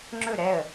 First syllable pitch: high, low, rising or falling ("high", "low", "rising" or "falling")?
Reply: falling